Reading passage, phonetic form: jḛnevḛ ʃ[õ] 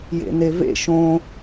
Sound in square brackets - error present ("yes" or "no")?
no